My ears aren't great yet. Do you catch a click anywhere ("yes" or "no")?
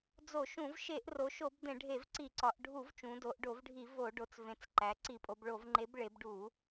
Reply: yes